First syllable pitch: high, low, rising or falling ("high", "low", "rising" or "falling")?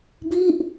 falling